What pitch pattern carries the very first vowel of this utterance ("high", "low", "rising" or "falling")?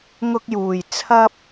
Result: high